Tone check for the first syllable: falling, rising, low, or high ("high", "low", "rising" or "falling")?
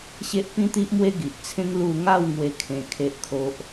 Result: high